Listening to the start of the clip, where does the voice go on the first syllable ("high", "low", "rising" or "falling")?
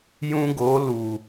high